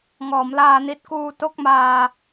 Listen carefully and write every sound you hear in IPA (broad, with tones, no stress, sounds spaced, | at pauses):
ŋ ɔː˩˦ m l aː˧ n i˦˥ t̚ k uː˧ t o˥˩ k̚ m aː˧